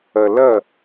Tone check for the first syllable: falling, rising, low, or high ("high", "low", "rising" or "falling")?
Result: low